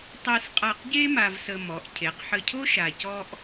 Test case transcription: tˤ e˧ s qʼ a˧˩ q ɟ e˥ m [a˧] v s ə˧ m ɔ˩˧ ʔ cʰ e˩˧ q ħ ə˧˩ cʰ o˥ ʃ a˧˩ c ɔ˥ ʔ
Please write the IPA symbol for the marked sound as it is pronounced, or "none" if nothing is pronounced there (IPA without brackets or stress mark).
a˧